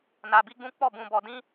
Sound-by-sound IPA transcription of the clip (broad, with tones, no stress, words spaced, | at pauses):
na˧bi˦ɡ͡bũ˦ k͡pɔ˦˨bũ˧bɔ˧dĩ˦